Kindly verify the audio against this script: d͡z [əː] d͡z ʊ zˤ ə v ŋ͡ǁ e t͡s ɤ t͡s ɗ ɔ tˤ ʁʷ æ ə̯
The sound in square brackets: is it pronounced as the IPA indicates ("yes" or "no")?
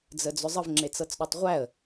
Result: no